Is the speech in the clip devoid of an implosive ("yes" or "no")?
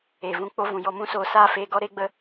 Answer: yes